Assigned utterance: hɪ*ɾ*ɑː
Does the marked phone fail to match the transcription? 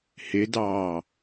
yes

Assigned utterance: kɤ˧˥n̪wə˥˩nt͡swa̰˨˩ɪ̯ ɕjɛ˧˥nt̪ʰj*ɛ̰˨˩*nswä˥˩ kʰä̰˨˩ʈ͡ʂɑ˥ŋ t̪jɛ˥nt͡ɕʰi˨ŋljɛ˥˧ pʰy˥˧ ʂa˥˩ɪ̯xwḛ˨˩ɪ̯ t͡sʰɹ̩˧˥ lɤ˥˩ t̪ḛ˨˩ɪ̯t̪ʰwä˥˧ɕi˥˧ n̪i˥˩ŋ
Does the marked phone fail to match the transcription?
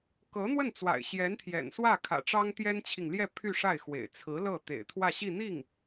no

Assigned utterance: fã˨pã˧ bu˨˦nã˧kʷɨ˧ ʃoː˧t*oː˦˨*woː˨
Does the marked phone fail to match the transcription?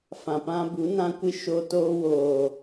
yes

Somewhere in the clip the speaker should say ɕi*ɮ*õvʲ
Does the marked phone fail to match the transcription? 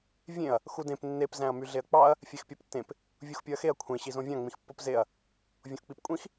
yes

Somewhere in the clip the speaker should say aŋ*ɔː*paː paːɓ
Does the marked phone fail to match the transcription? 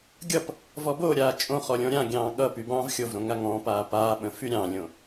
yes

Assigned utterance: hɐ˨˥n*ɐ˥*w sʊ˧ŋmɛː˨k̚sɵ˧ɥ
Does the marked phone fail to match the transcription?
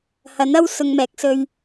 no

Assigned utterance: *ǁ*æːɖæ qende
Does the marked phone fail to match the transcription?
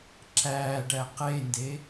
no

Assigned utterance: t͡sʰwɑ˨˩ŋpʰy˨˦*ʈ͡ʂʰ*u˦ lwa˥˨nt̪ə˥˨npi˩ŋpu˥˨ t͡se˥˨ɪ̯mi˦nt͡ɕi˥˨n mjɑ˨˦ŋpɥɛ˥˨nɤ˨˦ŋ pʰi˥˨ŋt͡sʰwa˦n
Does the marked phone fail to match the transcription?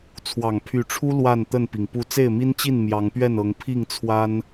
no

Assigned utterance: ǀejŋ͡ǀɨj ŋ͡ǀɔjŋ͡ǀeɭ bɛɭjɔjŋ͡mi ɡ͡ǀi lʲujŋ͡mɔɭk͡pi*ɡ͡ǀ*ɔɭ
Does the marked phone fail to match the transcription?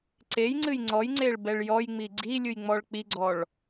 no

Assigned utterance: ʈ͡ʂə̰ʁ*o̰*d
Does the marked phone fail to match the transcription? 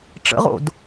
no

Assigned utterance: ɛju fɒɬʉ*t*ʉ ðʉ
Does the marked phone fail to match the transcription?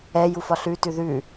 no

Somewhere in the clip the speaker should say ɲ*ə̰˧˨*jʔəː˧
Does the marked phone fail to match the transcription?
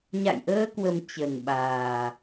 yes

